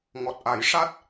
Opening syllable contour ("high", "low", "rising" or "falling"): low